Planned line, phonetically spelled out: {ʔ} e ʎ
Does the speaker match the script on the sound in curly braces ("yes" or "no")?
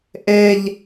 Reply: yes